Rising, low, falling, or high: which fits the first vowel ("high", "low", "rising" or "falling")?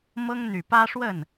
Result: high